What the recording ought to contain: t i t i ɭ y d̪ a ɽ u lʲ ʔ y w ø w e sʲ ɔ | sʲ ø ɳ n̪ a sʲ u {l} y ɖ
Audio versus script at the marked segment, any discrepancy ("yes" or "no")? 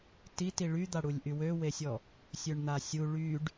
yes